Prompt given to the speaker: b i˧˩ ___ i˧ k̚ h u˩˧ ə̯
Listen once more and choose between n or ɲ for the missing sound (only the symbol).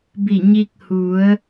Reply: ɲ